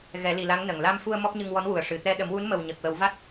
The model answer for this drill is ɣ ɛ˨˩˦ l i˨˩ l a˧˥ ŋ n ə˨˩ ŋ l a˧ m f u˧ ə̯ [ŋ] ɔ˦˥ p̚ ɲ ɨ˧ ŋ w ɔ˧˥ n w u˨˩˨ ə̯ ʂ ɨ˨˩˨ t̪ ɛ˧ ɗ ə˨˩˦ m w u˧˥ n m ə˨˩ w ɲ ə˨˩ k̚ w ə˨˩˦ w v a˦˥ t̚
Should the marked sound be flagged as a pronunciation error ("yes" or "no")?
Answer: yes